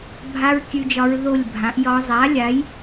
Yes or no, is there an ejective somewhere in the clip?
no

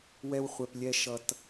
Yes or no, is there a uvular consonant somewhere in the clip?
yes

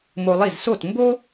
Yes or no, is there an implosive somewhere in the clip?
no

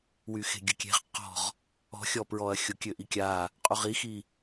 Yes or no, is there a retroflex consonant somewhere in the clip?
no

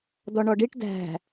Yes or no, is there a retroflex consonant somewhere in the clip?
yes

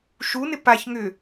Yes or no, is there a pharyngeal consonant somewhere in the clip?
no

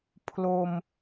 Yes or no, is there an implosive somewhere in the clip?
no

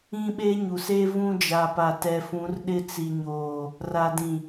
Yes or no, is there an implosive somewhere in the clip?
yes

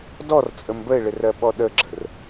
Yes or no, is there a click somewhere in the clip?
yes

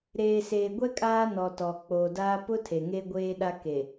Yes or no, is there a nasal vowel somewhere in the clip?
no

